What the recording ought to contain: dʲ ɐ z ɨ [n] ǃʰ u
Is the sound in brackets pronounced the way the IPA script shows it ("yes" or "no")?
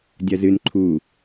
yes